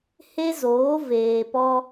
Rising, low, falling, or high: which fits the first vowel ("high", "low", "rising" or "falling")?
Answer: high